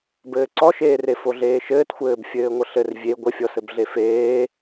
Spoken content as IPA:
b ɘː ǀ ɔ ʃ eː r e f o ɮ eː ʃ ɘː t xʷ ɘː b fʲ ɘː ŋʷ ə ɬ ɘ r vʲ e ɡʷ ə fʲ ɔ s ɘ b ɮ e f eː

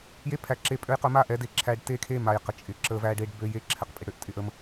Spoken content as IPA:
j e˧ pʰ æ˨ ǁ e˨ pʼ ø˧ j q ɵ˧ m a˦ ʔ ɛ˨˦ d e˧ ǁʰ æ˧ ɖ t e˦ kʰ e˦ m a˨ j q ə˨ t͡ʃʼ ɪ˨ ǁ ə˧ v æ˦ ɖ e˦ ɖ b ø˦ j e˦ ǁʰ ɛ˨ q pʼ ɪ˨ ɽ ø˦ ʔ tʼ ɪ˧ ʔ ə˧ m

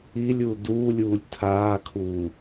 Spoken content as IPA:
i lʲ u d uː lʲ uː lʲ tʰ aː kʰ uː

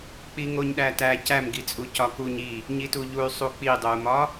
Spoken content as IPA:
k͡p i ŋ o ɲ ɗ æ t æ c æ m ɡ i t͡sʼ u c ɒ k u ɲ i | ɲ i t u ʎ u y̯ sˤ u k͡p i dˤ o u̯ m ɒ

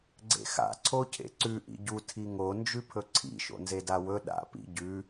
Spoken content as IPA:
ɡ͡ǀ ḛ x a̰ ǀʰ o cʰ ḛ ǀ ʉ ʔ ḭ ɟ u tʰ i ŋ o n d͡ʒ ʉ pʰ ɵ ǀʰ ḭ ʃ o̰ n z e d a w ɵ ɗ a̰ p ḭ ɟ ʉ

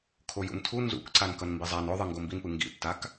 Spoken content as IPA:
kʰ o j ṵ n tʰ u n z ṵ k ǀ a n k ʌ n m b i zˤ a n o ðˤ ɯ ŋ ɡ o m b i n p ɯ ŋ ɡ ḭ tː a k

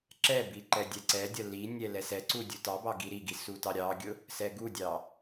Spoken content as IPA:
ǁ ɛ b i ǃ ɛ dʲ ɛ ǀ ɛ dʲ ɐ l i nʲ ɛ l ɛ s ɛ ǀ u dʲ u t ɑ b ɑ ɡ i ɾ i ɡ i s u t ɑ ɾʲ ɑ ɡʲ ʊ | s ɛ ɡ u dʲ ɑ

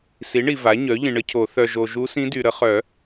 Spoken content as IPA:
s i˩˥ ɳ i˨ v a˩˥ ɲ œ˩˥ ʎ ĩ˨ ɳ ə˧˥ cʰ o˨˩˦ θ œ˨ ʒ o˨ ʒ u˧˥ s ĩ˧˥ d y˨ ɾ ə˨˩˦ χ œ˨˩˦

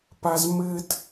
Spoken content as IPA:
p a z m ɘ d

